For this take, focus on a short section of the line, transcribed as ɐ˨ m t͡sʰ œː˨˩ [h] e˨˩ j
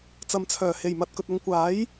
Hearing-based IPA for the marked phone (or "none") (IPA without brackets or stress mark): h